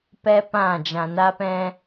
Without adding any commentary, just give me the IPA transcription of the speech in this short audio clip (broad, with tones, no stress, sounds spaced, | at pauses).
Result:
p ɛ˦ p ã˦˨ d͡ʒ ã˨ n a˧ p ɛ̃˧